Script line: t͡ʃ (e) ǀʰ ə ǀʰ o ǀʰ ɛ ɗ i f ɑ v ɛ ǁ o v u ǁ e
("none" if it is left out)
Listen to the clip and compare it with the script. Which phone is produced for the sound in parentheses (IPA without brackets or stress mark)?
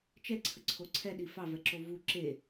ɛ